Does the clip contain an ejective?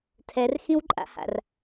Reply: yes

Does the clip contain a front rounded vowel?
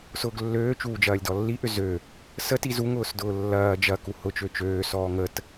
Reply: yes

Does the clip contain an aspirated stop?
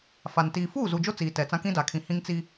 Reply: yes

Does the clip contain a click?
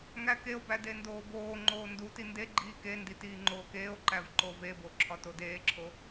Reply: yes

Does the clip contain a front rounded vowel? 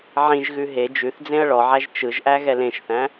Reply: no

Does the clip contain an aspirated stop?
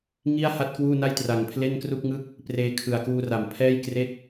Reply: yes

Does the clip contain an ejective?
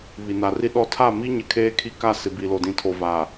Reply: no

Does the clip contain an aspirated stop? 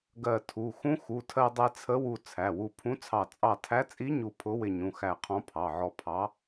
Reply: yes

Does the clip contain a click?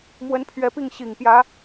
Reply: no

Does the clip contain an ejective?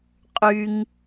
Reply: yes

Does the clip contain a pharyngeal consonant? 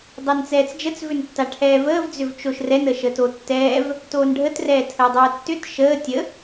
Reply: no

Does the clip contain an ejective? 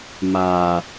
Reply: no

